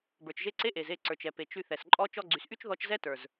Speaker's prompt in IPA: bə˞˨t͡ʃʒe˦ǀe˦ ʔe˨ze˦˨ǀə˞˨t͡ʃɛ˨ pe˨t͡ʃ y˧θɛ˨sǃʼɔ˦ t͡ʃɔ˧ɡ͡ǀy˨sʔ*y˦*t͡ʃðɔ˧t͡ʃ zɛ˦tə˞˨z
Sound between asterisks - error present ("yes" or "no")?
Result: no